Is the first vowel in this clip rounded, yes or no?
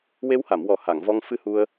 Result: no